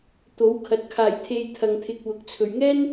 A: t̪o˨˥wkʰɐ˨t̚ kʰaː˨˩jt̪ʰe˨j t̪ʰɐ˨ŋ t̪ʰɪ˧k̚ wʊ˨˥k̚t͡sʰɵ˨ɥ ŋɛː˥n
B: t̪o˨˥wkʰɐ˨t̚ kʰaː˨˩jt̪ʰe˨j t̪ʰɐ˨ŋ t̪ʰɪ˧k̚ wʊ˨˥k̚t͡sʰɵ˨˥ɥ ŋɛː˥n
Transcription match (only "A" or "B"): A